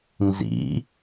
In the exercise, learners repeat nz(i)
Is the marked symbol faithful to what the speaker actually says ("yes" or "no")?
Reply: no